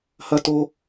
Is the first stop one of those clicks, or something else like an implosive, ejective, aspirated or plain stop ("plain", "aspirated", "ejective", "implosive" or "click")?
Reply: plain